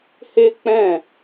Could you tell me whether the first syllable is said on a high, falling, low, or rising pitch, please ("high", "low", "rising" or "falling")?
high